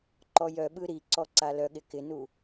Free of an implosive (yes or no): no